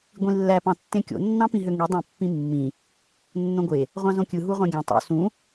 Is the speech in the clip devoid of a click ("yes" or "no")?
yes